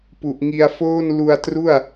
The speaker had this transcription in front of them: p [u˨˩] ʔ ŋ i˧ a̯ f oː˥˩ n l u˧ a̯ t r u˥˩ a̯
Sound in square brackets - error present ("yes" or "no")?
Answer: no